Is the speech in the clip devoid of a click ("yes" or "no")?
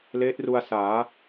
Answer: yes